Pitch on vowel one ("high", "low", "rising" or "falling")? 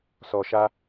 low